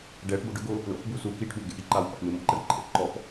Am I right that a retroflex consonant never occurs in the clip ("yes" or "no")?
no